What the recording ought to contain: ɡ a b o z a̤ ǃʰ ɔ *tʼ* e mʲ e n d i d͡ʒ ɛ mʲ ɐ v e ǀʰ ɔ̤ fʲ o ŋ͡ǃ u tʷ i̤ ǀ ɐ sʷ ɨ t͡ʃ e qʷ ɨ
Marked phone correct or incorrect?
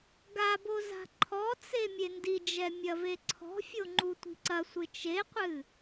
incorrect